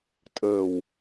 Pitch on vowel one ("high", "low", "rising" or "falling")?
low